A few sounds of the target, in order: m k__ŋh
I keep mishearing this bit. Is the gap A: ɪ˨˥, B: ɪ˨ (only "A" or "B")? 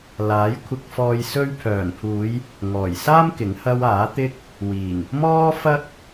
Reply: A